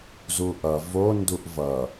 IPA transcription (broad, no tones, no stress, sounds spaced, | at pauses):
z u ʔ ʌ v o n d u ʔ v ʌ